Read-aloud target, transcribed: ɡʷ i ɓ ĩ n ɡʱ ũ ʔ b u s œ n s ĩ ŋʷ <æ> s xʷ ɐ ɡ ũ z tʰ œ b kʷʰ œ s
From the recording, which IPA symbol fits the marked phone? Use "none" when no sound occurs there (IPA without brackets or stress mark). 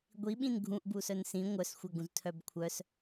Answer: œ